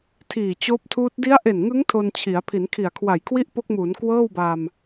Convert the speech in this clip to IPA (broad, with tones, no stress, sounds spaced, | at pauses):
tʰ iː˨˩ t͡ɕ oː˦˥ p̚ tʰ uː˦˥ t̚ d i˦˥ a̯ ʔ e˨˩ n ŋ ɯ˦˥ ŋ tʰ o˧ n t͡ɕʰ i˩˦ a̯ pʰ i˩˦ n kʰ i˨˩ a̯ kʰ w a˨˩ j kʰ w i˥˩ ʔ p o˦˥ k̚ m uː˩˦ n k w ɤː˥˩ w b a˧ m